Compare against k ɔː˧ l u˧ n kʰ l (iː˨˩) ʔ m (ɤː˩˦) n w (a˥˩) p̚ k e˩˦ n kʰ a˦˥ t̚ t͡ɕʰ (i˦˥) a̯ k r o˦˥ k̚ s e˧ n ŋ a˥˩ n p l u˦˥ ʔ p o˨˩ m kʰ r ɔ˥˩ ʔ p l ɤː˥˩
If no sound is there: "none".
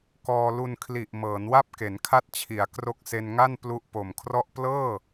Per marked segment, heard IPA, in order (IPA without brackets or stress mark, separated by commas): i˨˩, ɤː˩˦, a˥˩, i˩˦